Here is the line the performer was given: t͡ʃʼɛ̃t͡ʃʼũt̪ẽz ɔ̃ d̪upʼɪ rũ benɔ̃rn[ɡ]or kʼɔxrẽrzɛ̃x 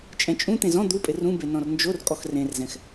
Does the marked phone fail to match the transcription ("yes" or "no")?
yes